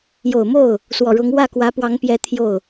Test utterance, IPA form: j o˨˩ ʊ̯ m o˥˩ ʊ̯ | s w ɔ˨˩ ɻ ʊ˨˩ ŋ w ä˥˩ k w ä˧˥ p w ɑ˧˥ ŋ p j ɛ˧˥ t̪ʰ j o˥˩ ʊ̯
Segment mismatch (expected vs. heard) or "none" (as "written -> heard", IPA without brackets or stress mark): ʊ˨˩ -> ʊ˧˥